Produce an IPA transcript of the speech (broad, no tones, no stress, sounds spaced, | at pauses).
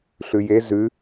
ɬ ʉ j e z ʉ